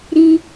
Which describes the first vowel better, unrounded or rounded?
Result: unrounded